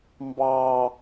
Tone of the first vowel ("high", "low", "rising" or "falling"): high